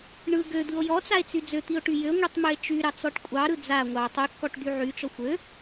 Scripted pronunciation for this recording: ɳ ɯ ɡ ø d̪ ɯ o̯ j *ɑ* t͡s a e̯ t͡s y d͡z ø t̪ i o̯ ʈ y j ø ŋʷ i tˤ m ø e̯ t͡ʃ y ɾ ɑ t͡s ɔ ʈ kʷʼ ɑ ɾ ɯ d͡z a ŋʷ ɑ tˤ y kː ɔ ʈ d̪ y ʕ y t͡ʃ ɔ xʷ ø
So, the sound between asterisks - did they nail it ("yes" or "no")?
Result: no